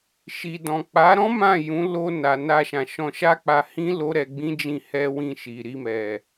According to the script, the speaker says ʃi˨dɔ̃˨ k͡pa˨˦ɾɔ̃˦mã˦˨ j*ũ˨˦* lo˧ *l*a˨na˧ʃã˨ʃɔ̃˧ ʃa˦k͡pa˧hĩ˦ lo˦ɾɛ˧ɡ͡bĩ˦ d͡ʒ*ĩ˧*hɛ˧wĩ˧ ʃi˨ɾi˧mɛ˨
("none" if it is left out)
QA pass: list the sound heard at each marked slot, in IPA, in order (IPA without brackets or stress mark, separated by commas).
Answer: ũ˨˦, n, ĩ˧